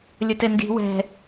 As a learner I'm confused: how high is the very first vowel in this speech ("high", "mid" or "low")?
mid